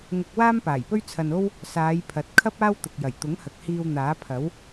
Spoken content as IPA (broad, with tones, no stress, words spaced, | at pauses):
ŋʊ˧k̚ waː˥mpaː˨˩jpɵ˥ɥ t͡sʰɐ˧no˥w | saː˨˧jpʰɐ˨t̚kʰɐ˥p̚ aː˥wt̪ʊ˨k̚jɐ˨˩j t̪ʊ˨˥ŋhɐ˨k̚ hiː˧wn̪aː˨˥pʰɐ˨˥w